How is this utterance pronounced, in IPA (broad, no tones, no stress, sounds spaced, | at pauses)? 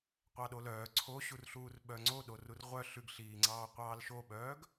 qʷ ɑ ɗ o l œː ǀʰ o ɕ u r ɬ uː r ɓ œ ŋ͡ǀ o ɗ o r u r ʁʷ œ ɬ ʉ ɡ ɬ iː ŋ͡ǀ ɑː qʷ ɑː l ʃ o ɓ œː ɡ